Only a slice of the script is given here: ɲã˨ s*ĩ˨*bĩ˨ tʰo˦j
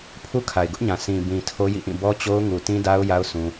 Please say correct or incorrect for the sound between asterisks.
correct